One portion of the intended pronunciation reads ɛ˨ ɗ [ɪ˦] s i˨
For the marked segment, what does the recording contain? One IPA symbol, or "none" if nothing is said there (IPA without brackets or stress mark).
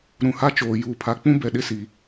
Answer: ɪ˦